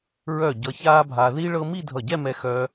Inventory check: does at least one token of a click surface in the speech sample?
no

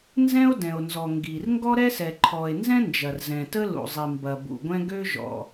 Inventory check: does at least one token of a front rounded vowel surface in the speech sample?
yes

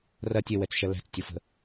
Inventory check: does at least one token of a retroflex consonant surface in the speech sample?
no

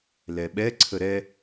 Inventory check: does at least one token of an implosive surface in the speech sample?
yes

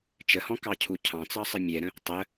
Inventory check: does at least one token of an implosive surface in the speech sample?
no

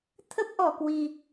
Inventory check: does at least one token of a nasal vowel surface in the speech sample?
no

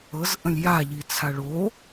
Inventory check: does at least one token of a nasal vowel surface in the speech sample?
yes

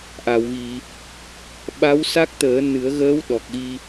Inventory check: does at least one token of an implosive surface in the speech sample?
yes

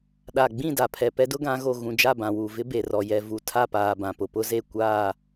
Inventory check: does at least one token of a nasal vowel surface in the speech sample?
yes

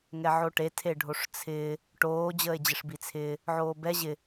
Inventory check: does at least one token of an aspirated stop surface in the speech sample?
yes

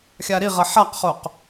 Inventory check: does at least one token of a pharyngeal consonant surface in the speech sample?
yes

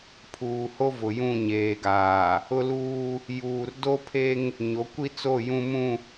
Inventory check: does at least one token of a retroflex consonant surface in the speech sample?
no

